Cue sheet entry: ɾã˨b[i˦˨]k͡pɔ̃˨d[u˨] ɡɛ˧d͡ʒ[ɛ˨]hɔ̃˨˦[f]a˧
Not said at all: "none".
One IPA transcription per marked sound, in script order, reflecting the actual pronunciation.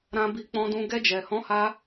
i˨, ũ˨, ɛ˨, h

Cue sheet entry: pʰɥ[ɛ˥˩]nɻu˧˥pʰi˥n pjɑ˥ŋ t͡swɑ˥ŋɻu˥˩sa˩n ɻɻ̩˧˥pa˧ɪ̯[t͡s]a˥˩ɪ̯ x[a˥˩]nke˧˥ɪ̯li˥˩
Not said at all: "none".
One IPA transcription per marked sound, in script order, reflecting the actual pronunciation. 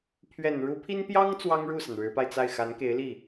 ɛ˨˩, t͡s, a˧˥

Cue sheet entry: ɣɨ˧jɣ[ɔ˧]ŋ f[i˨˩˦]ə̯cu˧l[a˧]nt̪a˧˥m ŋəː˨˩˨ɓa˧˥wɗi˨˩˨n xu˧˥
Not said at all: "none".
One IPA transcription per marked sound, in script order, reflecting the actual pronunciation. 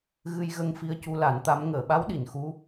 ə˧, i˧, a˨˩˦

